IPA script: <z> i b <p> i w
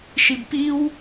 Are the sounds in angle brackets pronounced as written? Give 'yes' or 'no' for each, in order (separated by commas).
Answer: no, yes